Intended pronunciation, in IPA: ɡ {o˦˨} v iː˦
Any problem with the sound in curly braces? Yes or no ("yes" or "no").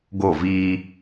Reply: no